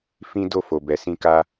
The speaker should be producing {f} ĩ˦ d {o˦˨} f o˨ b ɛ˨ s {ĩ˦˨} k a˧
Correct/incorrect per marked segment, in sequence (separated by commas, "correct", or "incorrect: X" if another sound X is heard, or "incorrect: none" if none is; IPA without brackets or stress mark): correct, correct, incorrect: ĩ˧